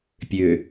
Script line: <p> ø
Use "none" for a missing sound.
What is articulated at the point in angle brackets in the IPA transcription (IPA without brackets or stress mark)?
pʲ